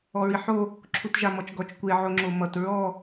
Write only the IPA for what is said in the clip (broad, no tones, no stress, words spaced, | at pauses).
ɔɹiħo | ǁʰutʒamɔt͡ʃɡɔt͡ʃ kʷe ʕoŋ͡ǁomʌt ɹɔ